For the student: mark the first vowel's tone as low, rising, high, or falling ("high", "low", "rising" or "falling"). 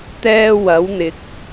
high